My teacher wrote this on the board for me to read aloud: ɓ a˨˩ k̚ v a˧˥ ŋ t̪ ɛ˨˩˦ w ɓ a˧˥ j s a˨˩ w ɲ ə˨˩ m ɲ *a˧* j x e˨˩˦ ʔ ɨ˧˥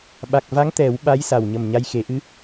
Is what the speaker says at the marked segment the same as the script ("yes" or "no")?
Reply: yes